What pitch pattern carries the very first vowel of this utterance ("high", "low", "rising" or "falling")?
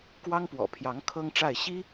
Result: high